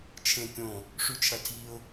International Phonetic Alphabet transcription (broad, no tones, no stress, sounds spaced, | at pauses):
t͡ʃʰ ẽ kʲ õ | ʂ ʉ t͡ʃʰ ɐ tʰ i ʊ̯